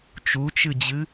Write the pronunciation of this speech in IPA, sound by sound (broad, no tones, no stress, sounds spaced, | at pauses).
t͡ʃ u t͡ʃ ɨ d͡ʑ ɨ